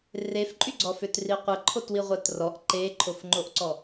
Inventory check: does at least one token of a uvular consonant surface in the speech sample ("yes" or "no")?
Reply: yes